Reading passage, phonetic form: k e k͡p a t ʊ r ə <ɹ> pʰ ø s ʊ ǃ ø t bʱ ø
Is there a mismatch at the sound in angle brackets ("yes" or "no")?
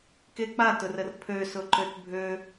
yes